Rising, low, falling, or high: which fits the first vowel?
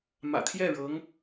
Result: low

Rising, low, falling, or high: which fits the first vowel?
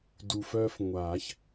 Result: low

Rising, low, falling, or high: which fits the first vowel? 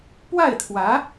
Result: falling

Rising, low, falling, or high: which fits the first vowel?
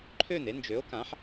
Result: falling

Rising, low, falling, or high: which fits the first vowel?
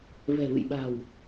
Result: low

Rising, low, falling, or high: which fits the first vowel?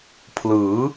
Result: rising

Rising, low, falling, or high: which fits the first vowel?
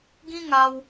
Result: high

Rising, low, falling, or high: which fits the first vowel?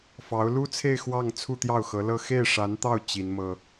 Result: rising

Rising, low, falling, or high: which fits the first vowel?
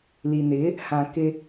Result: low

